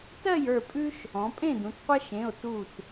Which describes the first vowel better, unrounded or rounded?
unrounded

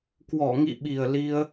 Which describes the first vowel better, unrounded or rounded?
rounded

